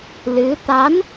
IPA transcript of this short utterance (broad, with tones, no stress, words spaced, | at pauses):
lɨ˧˥ t̪a˧˥n